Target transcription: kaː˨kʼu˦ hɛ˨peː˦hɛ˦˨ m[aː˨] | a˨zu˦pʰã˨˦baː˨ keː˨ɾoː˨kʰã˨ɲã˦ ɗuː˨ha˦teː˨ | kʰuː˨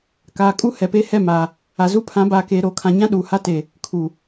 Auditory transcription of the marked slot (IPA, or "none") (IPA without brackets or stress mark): aː˨